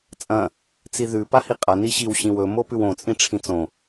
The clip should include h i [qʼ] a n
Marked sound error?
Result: no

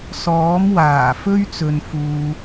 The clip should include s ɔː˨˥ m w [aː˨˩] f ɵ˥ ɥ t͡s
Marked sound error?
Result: no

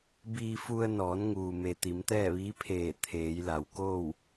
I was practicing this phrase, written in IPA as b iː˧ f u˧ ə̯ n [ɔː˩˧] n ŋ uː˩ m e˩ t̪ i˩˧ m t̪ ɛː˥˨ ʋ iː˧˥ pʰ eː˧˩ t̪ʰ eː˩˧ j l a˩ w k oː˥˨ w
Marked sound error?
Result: no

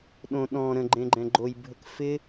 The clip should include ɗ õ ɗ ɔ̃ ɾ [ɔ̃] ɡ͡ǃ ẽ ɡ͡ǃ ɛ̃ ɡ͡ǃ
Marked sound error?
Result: yes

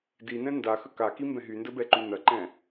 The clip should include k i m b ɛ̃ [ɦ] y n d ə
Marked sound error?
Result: no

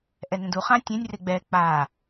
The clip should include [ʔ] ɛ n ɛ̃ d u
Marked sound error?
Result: no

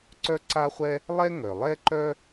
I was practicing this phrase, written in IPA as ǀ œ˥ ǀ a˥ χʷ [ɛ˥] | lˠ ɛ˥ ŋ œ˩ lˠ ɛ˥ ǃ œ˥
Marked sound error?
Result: no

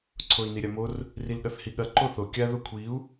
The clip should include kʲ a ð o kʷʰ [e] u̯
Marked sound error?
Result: yes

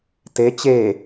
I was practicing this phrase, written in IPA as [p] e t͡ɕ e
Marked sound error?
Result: yes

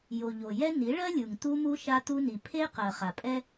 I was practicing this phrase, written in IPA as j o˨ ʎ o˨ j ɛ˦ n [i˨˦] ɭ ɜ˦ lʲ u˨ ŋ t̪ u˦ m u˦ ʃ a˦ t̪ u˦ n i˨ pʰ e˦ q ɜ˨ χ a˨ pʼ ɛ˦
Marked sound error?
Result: no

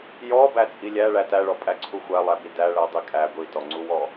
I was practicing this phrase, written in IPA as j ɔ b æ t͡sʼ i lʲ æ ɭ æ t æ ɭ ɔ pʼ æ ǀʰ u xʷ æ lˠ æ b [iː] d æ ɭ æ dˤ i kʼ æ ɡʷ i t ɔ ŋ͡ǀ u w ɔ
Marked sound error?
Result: yes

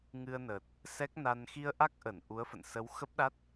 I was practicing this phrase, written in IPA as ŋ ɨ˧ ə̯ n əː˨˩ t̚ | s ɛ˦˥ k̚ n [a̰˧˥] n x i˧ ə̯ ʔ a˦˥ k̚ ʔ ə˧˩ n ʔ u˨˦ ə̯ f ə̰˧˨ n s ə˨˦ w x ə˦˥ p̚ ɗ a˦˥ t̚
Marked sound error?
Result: yes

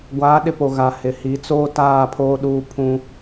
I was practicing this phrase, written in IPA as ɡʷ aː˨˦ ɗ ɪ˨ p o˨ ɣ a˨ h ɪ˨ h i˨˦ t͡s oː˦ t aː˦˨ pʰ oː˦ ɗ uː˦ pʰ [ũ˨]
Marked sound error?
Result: yes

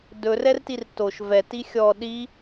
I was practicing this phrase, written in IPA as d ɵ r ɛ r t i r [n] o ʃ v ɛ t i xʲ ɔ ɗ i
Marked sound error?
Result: yes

